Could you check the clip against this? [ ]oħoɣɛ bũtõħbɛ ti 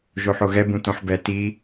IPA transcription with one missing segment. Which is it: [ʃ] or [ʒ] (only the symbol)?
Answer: ʒ